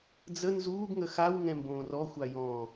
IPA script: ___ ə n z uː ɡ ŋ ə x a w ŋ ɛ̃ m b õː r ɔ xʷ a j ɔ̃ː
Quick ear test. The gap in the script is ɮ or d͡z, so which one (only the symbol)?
d͡z